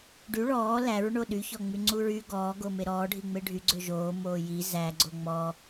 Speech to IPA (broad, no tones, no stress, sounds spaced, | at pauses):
ɖ y ɭ ɔː l æ ɹ ɳ o ɗ y ç ɔ ŋ͡m y ŋ͡ǀ u ɹ y ɡ ɔː ɡ o m e ɾ ɔː ɖʱ i ŋ͡m e ɖʱ y ɡ͡ǀ ø ʒ oː m oː j i z æ ɡ͡ǀ o ŋ͡m ɔ